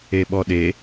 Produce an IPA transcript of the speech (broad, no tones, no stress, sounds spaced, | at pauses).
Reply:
e ɓ ɔ ɗ e